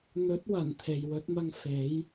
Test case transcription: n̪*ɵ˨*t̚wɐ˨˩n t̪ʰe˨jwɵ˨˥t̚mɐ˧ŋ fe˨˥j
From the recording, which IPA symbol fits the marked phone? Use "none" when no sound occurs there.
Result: ɵ˨˥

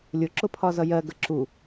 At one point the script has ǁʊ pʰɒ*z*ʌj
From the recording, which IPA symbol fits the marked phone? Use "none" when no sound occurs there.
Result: z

